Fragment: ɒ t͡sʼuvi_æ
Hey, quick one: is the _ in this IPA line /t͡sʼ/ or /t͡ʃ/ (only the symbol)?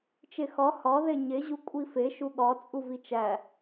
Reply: t͡ʃ